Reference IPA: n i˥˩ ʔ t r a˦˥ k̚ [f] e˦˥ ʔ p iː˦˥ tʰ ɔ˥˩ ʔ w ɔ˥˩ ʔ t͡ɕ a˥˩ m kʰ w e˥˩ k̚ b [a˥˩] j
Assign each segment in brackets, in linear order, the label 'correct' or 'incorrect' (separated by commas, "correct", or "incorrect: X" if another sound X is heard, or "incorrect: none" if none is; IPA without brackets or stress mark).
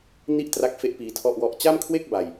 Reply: correct, incorrect: a˧